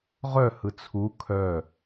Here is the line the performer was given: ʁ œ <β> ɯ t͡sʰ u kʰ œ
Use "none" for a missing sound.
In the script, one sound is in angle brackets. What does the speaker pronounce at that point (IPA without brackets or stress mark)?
h